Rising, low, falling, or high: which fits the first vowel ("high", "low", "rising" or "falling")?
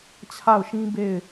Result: falling